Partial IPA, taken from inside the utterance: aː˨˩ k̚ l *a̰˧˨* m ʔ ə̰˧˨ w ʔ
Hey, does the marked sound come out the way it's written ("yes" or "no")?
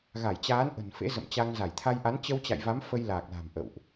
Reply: no